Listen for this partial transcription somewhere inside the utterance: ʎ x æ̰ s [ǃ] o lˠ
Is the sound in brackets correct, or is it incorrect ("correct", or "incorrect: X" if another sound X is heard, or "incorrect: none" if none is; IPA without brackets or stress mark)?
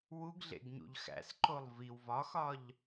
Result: correct